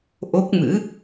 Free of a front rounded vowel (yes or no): yes